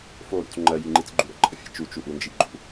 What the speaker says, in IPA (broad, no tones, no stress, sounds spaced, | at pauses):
f o ɾ ṵ t͡s ŋ͡ǃ ɜ j i ŋ͡ǃ i t͡s ɡ͡ǃ u ɾ ə̰ ǃʼ ə fʲ ḛ t͡ʃ u t͡ʃ u ʔ u n d͡ʒ i ɡ͡ǃ ṵ